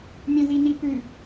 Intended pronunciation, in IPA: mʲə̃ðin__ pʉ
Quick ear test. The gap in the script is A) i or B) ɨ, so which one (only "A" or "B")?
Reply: A